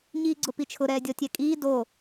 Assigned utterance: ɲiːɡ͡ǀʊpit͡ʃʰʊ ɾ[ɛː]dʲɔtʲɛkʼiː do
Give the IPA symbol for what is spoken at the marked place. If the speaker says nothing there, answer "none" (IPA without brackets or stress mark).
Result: ɛː